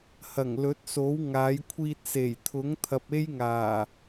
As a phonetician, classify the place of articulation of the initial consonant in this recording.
glottal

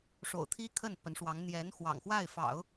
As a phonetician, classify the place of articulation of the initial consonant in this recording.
retroflex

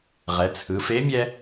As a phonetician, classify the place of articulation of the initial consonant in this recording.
uvular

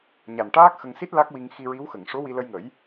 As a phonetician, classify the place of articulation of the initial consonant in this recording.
palatal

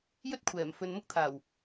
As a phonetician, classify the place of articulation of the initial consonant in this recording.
palatal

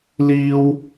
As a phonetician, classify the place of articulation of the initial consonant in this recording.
alveolar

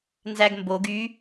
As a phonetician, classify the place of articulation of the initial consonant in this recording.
alveolar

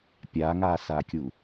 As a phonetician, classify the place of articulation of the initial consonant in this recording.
labial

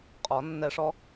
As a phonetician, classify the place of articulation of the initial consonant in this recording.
uvular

